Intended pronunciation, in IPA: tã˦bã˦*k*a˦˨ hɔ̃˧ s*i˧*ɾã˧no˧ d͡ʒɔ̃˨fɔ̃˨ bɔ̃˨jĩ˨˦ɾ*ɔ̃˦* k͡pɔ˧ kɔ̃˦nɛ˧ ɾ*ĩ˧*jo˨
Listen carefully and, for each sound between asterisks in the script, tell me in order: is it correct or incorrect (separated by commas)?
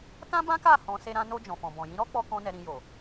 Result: correct, incorrect, incorrect, correct